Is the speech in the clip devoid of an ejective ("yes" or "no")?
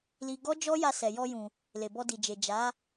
yes